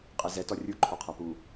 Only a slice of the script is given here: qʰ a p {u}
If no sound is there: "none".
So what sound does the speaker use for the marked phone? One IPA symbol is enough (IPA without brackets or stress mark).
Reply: u